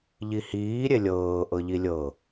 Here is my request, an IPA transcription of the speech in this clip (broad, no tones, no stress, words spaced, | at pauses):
ʎihiː ɾʲelʲɤː ʔɤʎilʲɤ